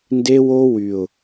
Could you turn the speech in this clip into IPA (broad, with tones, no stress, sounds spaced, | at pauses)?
n d e˦ w o˦ w y˨ ʊ̯